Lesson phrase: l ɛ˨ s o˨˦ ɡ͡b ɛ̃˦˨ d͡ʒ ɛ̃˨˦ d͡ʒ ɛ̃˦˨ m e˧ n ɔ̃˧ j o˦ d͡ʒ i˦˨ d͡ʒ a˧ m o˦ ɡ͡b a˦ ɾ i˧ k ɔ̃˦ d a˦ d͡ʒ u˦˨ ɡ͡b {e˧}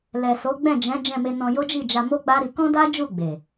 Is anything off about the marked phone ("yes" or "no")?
yes